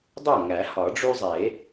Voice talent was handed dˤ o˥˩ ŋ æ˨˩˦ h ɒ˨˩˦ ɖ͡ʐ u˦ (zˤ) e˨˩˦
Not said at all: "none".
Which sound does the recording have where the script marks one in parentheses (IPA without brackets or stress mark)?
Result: zˤ